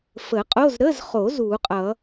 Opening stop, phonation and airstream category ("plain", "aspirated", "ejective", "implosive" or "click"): ejective